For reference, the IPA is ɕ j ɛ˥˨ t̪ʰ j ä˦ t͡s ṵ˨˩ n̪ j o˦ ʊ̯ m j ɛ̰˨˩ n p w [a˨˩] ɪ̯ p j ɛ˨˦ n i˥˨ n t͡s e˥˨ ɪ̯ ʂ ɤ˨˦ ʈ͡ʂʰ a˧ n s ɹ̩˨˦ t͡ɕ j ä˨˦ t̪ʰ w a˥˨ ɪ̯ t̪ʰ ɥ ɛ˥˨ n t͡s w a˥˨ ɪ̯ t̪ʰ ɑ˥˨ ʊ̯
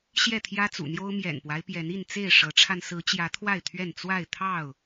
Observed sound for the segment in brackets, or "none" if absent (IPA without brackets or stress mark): a˦